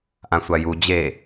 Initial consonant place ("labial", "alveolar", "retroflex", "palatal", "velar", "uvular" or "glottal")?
glottal